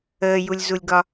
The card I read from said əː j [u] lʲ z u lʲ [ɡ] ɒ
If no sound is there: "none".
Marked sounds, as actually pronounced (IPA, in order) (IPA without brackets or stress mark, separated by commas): u, ɡ